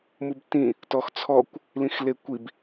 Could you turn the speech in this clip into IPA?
mubtĩ | tɔxt͡sʰɔkʷ | lĩxlekʷib

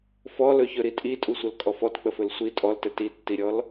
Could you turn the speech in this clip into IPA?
fɔlɵçɵ ɾitʼitʼusʷəl kʼɔfɔtk͡pəfɵl sʷi tʼɔltɘ titːiɾʲɔl

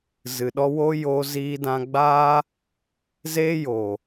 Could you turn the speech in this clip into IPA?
zɨ˨ɗɔ˧wo˦ joː˧ziː˧dã˧ ɡ͡baː˦ | ze˦jo˨

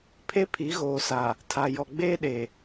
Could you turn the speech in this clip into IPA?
pʰe˦pʰi˨˦ɣoː˨sa˨ | tʰa˨jɔ˨ɡ͡beː˦ɗe˨

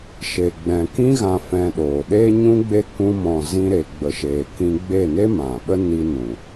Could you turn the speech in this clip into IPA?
ʃe˨ɡ͡bɛ̃˨ kĩ˧ɣã˨ fɛ̃˧ɗoː˨ ɗe˧ɲũ˧ɡ͡be˧ kũ˧mɔ̃˨zĩ˧ ɾe˨ɡ͡bə˨ʃe˨kĩ˧ ɡ͡be˦˨ne˦mã˨ɓə˦ ni˧nũ˨

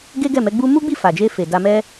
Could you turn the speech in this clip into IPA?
ɡe˦ɡɛ˦˨mɛ˨˦ɡ͡bu˦ mu˦ɡ͡bi˦˨fa˨d͡ʒe˧ fe˨da˧mɛ˦

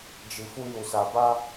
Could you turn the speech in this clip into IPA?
d͡ʒi˧fu˦ju˧sa˧ ba˦

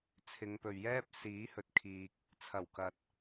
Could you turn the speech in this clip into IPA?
t͡sʰɪ˨˧ŋpɵ˨ɥjɛː˥p̚ siː˨˥hɵ˨t̚kʰiː˨k̚ | t͡sʰɐ˨˩wkɐ˨t̚

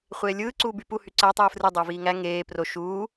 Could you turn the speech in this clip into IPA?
χʷeːlʲɯː ǀuːbypu hyǀæ tˤɯːfrɯ dˤuːviːŋæ ŋeː pro ʃuː

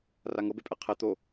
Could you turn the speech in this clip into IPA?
raŋɤbepʼɛ qʰɛ t̪o

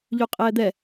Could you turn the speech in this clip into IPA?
ʎʉqʼɛːd̪ɛ

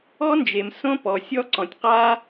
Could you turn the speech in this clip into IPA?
ɔ˥nd͡ʒe˩m sõ˥pɔ˩ sʲɔ˥ǀɔ̃˩tʲ qa˥

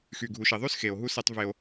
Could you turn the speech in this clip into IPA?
xy˨ɡʱu˨ʃi˨ðˤy˦s xe˨o̯ɦu˦se˦tˤve˦o̯

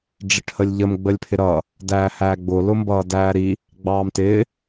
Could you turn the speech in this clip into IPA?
ɖ͡ʐɪʈhəlʲʎəm ɡ͡bəlʲpʰɪɾʌː | dæːhæːɡ͡bʊ lʊmbʌːdæːɾi | ɡ͡bɑːmtɪː

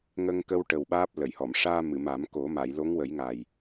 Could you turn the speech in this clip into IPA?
ŋə˧ŋkə˧wʈə˨˩w ɓaː˦˥p̚lə˨˩˨jhɔ˨˩˨m ʂaː˧mɨ˨˩˨ma˨˩˦m ko˨˩˦ma˨˩˨j lo˧˥ŋwə˨˩˦jŋa˨˩j

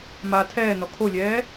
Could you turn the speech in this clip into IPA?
ma tʰɛːnɔ kʰolʲɛː

